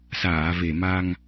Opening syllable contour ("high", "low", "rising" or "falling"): low